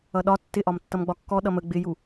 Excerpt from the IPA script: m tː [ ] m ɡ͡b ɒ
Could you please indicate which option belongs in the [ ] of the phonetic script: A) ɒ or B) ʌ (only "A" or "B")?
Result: B